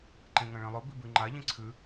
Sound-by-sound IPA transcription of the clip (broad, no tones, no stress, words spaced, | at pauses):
ǃẽŋɐ̃ɭẽlˠɵ bibʉŋ͡ǃa ʎĩǀʰʉ